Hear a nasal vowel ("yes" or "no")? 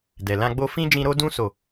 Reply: yes